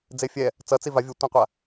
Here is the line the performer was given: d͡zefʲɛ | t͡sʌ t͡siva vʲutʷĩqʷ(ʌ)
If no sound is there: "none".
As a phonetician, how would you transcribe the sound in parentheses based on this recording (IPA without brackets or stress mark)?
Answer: a